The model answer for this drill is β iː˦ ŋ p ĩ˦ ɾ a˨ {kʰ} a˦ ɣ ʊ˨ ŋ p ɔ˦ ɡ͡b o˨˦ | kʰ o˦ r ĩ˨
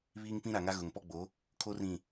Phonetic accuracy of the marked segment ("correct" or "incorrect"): incorrect